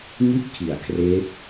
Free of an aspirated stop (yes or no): no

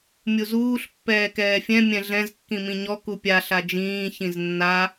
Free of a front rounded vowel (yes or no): yes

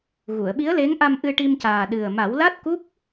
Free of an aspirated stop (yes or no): yes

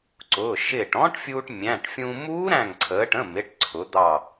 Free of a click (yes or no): no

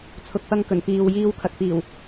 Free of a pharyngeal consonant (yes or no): yes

